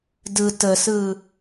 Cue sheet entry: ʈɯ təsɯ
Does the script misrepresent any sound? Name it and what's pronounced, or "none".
ʈ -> d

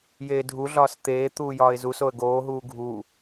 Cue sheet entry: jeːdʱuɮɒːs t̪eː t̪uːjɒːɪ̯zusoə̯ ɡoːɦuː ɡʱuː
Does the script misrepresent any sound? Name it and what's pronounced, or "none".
none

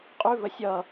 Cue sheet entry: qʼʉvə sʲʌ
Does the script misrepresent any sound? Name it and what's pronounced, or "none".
none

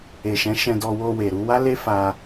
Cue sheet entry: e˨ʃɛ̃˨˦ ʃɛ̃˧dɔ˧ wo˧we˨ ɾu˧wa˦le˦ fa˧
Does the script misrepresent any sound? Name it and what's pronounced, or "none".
none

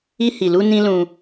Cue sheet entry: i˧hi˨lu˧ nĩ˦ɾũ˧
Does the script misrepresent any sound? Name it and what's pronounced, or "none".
ɾ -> l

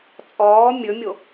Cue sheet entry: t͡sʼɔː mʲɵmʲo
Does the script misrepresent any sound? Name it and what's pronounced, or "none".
none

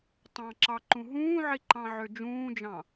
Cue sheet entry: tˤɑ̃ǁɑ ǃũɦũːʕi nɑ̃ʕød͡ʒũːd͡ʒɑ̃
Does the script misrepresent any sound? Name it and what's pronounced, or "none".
n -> ǃ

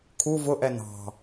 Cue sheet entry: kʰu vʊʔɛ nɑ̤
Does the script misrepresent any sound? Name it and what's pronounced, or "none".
none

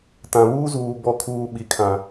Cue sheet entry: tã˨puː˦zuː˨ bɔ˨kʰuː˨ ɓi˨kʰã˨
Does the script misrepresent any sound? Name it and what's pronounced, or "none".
p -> β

